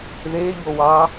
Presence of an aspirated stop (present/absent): absent